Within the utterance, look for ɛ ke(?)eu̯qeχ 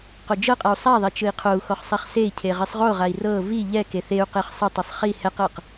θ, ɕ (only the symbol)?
θ